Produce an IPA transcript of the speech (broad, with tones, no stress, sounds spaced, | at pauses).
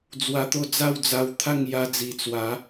d͡z w a˧ t̪ o˥˧ d͡z a˥˧ w d͡z a˧ w t̪ʰ a˥˧ ŋ j a˧ d͡z i˨˩ t͡s w a˨˦